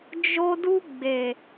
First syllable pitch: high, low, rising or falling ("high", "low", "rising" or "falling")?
high